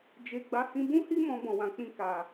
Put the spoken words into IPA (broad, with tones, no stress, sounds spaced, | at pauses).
d͡ʒ e˨ ɡ͡b a˨˦ h ĩ˧ b ũ˦ h i˦ m ɔ̃˧ b ɔ̃˨ w ã˨ k͡p ĩ˧ k a˨